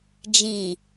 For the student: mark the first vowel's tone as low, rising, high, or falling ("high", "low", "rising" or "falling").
low